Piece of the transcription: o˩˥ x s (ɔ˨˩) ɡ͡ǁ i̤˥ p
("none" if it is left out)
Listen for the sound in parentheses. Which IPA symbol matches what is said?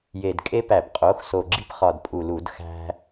o˨˩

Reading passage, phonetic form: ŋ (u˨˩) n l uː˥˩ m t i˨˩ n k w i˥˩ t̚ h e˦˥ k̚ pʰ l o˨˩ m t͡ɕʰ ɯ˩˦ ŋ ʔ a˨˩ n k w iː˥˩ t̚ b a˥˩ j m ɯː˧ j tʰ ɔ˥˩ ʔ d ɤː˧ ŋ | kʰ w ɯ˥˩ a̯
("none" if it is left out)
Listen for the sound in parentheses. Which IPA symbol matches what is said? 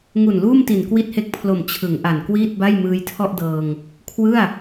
u˨˩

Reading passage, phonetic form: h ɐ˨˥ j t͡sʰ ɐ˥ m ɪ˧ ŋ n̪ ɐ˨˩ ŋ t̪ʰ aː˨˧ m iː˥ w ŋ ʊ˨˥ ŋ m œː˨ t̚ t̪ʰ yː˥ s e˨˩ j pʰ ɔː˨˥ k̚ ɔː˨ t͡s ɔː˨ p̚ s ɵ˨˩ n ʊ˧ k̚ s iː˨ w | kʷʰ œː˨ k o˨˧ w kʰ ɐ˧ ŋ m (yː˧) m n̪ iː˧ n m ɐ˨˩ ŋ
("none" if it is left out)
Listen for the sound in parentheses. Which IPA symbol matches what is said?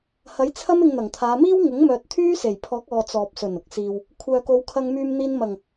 yː˧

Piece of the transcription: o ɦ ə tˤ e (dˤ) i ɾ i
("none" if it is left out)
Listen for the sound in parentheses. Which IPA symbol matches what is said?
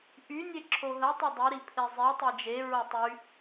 dˤ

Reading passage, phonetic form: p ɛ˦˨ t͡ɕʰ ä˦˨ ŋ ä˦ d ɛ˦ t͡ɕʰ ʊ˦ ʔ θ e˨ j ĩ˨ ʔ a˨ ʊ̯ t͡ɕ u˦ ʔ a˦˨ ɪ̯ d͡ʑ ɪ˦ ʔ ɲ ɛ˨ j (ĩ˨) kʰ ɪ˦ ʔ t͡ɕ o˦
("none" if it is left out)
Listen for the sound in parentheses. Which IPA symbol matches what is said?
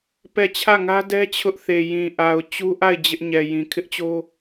ĩ˨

